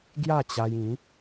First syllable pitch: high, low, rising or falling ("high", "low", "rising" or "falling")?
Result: falling